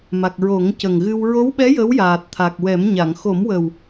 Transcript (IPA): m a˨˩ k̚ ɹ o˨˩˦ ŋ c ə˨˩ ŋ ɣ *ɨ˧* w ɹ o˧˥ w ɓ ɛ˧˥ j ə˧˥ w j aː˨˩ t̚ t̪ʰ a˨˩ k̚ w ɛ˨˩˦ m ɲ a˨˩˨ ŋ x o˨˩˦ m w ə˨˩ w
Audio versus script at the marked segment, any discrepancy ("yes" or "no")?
no